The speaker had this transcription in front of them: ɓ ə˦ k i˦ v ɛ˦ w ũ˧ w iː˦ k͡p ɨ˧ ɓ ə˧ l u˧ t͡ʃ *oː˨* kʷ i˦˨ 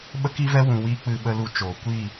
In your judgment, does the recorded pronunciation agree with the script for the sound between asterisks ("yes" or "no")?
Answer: yes